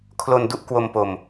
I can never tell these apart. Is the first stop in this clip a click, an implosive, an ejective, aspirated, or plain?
aspirated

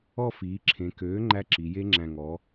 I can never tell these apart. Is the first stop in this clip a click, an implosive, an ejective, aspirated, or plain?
click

